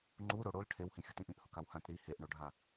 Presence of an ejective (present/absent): absent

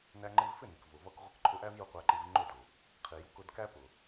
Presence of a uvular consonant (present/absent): present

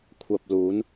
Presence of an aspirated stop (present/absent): present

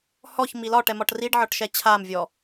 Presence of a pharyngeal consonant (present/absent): present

